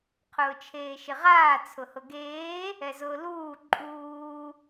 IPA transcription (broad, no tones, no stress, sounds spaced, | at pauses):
qʰ ʊː t͡ʃʰ eː ʃ ɪ ʁ aː t͡sʰ ʊ h ʊ ɡ eː | ɛ z ʊː l uː ǃʼ uː